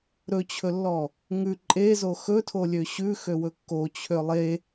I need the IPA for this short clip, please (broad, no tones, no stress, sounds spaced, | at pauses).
ɾ ɵ t͡ɕʰ ɵ lː ɔ | ŋ ʉ ǃʼ e z o x ɵ tʰ o lʲ ø ɕ ʉ x ø w ɵ kː o t͡ɕʰ ø lˠ e